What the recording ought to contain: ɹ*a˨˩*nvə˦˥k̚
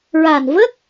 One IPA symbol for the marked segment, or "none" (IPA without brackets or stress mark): a˨˩